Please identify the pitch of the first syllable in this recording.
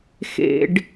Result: high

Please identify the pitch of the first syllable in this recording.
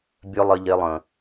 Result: high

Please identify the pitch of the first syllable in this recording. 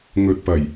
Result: low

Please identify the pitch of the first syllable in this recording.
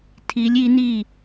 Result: rising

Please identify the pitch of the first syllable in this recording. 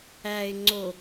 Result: low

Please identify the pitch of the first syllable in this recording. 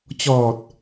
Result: low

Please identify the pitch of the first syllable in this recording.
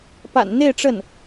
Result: low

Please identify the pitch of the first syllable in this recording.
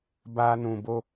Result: high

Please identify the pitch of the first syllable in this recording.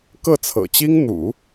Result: falling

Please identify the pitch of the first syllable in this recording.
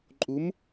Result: rising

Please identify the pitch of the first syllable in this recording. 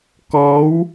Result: rising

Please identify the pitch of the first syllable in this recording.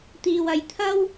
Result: low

